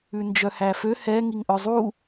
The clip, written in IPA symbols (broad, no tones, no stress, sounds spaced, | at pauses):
ʉ n d͡ʒ œ h æ f ø h ɛ ŋ i ŋ ʔ œ zˤ u